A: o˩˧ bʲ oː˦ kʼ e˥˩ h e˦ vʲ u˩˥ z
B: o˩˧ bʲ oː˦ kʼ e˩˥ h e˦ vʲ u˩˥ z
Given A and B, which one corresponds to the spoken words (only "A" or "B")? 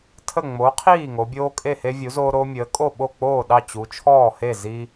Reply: A